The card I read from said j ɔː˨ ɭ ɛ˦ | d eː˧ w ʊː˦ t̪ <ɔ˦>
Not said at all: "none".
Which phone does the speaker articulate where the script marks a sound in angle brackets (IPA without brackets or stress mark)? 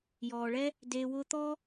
ɔ˦